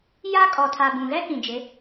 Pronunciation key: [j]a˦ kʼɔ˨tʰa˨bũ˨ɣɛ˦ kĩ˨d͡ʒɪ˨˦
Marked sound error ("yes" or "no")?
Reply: no